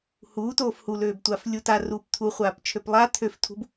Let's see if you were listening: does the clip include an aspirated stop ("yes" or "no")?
yes